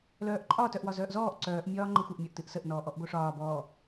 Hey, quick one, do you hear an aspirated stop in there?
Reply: no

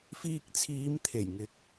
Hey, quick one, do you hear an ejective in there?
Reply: no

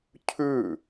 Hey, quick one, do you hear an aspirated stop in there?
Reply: yes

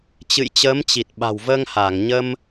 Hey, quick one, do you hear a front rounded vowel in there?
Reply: no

